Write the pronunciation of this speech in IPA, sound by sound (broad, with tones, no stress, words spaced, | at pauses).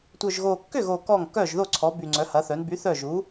tʷœ˨˩ʒɣo˨˩kːʏ˥˩ɣo˨˩ kɔ˥˩ŋ kœ˥˩ʒðo˥˩ ǀʰɔ˩˥by˨˩ ŋ͡ǀœ˩˥hɐ˩˥θœ˩˥n by˩˥ θœ˥˩ʒu˩˥